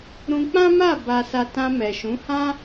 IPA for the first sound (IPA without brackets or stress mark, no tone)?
ɾ